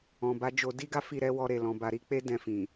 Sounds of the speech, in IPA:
ɔ̃˨ b a˨˦ d͡ʒ o˧ d i˦ ɡ a˦ f i˦˨ ɾ ɛ˨˦ w ɔ˧ ɾ e˨ l ɔ̃˨ b a˨ ɾ i˨˦ k͡p e˦ d ɛ̃˧ f ĩ˨

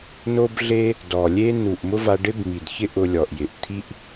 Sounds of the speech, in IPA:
n o˦ b ɮ e˦ | d ɔ˨ lʲ e˦ n u˨ ʔ m ʊ˦ v a˧ ɖ ɪ˦ b m i˨ d ç ɪ˦ ʔ ʊ˧ lʲ ɔ˨ ʔ j ɪ˨ ʔ t̪ʰ i˦ ʔ

